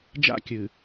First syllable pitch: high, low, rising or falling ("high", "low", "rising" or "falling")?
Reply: high